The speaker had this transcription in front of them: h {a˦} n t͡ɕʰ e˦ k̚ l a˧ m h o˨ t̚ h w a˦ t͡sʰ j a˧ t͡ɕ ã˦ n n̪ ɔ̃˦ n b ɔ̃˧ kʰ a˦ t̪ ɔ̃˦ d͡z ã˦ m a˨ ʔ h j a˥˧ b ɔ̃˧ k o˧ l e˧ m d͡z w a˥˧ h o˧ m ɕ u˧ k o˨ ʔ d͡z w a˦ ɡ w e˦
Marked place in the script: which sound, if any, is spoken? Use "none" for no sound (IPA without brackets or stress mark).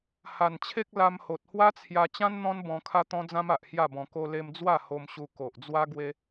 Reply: a˨˩